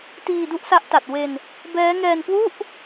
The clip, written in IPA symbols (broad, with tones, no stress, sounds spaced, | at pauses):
t iː˧ d u˦˥ ʔ s a˦˥ ʔ t a˨˩ t̚ w e˧ n | b ɛː˦˥ ŋ ɛː˧ n k w u˥˩ ʔ